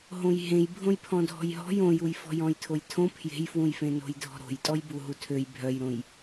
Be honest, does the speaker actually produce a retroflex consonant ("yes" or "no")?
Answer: no